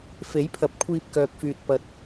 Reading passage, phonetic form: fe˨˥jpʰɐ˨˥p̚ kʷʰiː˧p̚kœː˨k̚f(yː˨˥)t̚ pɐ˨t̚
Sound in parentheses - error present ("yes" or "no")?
yes